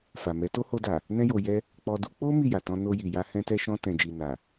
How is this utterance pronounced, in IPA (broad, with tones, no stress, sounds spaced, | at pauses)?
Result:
f a˨ m ɛ˨˦ t o˦ h o˧ d a˨ | n ɛ̃˦ j o˧ j ɛ˧ | k͡p ɔ˧ d u˦ k͡p o˦ m i˦˨ j a˨ t ɔ̃˧ n o˧ j i˨ j a˧ h ɛ̃˧ t ɛ˧ ʃ ɔ̃˧ t ɛ̃˨ d͡ʒ i˨ n a˨